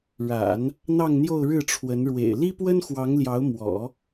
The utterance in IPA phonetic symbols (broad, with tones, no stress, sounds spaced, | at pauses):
ɻ a̰˨˩˦ n | n̪ ɑ˥˧ ŋ n̪ j o˥˧ ʊ̯ ɻ ɻ̩˥˩ ʈ͡ʂʰ w ə˧˥ n ɻ w ḛ˨˩ ɪ̯ l i˥ p w ə˥ n x w ɑ˧˥ ŋ l j ɑ˧˥ ʊ̯ m w ɔ̰˨˩˦